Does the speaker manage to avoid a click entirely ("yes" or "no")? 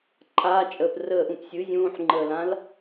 no